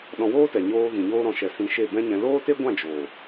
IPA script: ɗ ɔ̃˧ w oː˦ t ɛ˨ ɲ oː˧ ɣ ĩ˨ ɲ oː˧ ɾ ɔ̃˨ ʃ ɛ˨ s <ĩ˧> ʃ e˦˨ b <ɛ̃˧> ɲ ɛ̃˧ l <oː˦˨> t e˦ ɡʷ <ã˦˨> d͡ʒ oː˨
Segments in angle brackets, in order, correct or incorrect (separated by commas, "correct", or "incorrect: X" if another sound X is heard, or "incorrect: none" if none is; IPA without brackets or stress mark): correct, incorrect: ɛ̃˦, incorrect: oː˦, correct